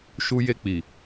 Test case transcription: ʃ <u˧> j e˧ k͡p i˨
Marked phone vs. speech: correct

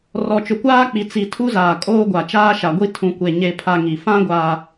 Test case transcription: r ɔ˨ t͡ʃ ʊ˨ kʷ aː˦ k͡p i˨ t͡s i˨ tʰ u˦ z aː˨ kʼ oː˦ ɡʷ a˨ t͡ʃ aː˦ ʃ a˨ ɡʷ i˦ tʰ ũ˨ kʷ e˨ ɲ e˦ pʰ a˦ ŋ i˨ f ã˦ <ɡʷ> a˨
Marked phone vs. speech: correct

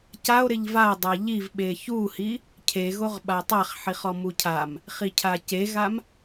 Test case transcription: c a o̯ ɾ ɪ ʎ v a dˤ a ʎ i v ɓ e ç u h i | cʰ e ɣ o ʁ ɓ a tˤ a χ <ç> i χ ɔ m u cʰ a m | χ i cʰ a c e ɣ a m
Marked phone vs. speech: incorrect: ħ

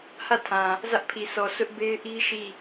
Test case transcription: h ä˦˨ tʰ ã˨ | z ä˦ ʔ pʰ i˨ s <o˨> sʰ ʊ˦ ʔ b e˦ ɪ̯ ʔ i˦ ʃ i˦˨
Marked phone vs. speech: incorrect: ɔ˨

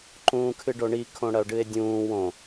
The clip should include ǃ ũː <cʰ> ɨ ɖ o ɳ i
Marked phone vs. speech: incorrect: kʰ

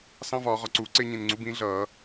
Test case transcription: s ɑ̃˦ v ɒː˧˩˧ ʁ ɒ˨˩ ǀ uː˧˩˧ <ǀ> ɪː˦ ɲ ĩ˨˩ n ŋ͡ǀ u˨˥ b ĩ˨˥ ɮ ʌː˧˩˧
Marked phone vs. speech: correct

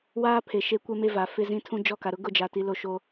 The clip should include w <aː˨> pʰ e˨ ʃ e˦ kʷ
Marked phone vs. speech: incorrect: aː˦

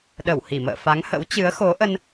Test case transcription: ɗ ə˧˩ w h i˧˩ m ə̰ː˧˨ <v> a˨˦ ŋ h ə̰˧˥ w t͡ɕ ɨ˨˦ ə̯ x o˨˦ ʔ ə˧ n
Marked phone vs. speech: incorrect: f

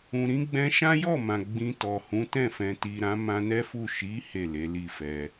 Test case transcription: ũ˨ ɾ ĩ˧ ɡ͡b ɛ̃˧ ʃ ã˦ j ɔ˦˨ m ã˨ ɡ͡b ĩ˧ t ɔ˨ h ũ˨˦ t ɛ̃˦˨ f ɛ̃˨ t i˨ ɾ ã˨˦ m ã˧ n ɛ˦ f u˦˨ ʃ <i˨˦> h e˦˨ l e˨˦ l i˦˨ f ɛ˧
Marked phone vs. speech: correct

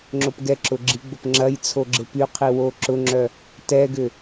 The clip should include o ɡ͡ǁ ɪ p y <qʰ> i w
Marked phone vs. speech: correct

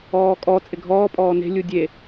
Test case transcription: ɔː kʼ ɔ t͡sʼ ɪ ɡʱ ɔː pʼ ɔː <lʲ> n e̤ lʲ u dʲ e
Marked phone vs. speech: incorrect: none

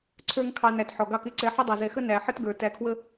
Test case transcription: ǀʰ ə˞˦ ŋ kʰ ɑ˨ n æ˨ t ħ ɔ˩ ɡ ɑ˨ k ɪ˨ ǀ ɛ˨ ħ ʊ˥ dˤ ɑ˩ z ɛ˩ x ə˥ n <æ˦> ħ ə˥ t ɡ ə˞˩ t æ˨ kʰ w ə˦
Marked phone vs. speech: incorrect: æ˩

